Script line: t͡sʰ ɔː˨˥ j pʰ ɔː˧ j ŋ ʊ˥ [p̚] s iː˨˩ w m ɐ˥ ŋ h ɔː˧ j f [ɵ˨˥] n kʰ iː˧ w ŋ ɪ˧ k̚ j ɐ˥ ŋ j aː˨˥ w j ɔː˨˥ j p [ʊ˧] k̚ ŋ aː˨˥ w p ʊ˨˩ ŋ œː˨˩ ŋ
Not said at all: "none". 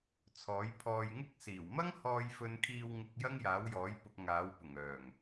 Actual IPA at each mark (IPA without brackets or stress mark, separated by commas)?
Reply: k̚, ɵ˧, ʊ˧